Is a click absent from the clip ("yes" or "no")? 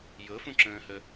no